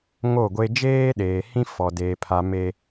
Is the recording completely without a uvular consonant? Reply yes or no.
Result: yes